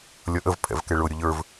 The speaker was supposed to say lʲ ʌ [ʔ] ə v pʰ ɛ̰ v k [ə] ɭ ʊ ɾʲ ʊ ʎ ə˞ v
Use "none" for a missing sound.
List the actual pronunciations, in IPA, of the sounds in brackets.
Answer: ʔ, ɛ

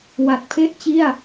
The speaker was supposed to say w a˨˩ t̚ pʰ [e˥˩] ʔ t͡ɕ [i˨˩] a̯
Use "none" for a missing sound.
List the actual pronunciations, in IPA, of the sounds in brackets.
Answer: e˥˩, i˥˩

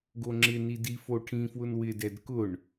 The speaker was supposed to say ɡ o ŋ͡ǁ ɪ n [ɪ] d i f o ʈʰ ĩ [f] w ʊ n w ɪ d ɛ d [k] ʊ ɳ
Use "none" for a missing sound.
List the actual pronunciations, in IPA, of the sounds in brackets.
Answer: i, f, k

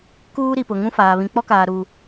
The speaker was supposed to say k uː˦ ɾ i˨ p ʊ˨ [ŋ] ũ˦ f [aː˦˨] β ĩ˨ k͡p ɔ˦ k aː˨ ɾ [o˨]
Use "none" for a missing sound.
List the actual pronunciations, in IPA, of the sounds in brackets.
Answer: ŋ, aː˨, u˨

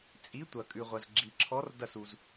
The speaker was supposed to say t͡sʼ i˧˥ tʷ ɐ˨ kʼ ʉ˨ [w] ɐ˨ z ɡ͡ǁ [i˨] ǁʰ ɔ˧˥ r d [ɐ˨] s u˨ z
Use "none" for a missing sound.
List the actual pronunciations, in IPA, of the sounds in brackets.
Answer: ʁʷ, i˨, ɐ˦˨

